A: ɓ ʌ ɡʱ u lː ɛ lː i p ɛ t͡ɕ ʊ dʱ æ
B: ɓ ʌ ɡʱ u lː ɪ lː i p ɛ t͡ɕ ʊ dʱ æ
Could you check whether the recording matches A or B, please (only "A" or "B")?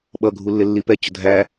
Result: B